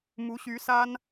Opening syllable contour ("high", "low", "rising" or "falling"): rising